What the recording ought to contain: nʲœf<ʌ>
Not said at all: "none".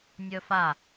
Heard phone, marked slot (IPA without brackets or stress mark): a